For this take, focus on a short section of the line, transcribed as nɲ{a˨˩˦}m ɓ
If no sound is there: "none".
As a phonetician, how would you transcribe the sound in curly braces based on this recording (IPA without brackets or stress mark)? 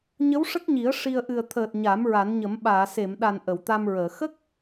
ə˨˩˦